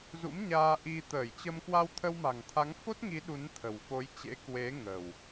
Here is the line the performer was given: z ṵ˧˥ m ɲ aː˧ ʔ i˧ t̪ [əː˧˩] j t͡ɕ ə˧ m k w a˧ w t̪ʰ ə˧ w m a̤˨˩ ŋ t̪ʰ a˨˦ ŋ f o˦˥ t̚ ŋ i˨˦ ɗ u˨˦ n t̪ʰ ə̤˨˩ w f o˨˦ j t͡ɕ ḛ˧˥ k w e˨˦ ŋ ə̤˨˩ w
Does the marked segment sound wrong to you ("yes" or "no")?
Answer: no